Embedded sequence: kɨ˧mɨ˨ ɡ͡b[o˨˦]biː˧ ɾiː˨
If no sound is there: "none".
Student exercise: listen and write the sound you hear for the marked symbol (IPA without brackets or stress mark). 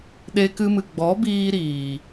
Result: ɔ˨˦